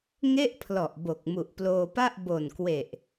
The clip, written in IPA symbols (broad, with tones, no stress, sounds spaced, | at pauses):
ŋ e˥˩ ʔ pʰ l ɔ˨˩ ʔ b o˨˩ k̚ m u˨˩ ʔ p l oː˧ p a˥˩ ʔ b o˨˩ n k w e˨˩ ʔ